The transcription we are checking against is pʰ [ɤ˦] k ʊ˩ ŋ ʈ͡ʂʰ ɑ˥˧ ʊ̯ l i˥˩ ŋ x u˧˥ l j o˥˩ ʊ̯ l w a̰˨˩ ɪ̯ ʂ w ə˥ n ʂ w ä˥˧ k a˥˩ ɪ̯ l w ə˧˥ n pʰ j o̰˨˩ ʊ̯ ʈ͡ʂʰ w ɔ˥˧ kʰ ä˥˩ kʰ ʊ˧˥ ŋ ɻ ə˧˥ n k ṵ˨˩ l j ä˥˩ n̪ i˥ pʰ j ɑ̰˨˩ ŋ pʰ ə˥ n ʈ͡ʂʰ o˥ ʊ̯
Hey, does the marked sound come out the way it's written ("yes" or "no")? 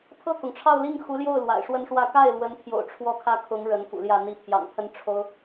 no